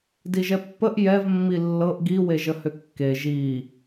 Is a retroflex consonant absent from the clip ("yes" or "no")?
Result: yes